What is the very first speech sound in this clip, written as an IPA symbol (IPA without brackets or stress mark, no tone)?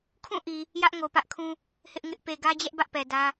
kʰ